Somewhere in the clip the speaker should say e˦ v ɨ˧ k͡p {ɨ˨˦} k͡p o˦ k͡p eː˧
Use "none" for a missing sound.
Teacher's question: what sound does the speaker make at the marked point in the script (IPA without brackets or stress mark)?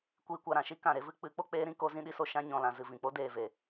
ɨ˨˦